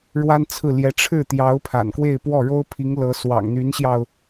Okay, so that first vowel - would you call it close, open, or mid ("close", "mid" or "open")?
open